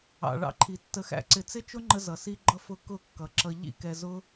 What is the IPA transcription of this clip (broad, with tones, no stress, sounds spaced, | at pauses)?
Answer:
ɑ̰˨ ɭ ɑ̰˧ ǃʰ i˨ tː ə˨ x æ̰˨ ǀ ɪ˨ t͡s ɪ˦ t͡ʃ ʊ˦ ŋ͡ǃ ə˧ z ʌ˨ s i˧ ɡ͡ǃ ʌ˧ f ʊ˧ k ʊ˦˨ kː ʌ˨ ǁ ʌ˧ ʎ ḭ˦ k ɛ˧ z ʊ˦